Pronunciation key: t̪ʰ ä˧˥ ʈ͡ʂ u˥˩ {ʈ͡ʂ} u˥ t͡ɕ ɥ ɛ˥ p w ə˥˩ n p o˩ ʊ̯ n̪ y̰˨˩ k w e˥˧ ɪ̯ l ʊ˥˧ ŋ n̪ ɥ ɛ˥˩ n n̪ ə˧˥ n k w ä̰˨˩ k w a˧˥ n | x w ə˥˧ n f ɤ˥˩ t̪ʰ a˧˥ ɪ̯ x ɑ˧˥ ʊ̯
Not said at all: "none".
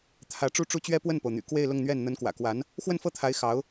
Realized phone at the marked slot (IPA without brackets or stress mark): ʈ͡ʂ